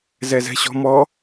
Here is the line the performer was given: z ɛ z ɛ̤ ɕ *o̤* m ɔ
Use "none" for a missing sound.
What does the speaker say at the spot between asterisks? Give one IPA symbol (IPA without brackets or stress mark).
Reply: ɔ̤